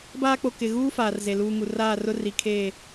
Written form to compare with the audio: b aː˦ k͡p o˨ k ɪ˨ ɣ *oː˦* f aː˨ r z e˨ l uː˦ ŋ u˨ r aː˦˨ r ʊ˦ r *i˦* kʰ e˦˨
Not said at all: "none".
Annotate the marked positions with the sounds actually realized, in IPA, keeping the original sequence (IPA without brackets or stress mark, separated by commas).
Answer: uː˦, i˨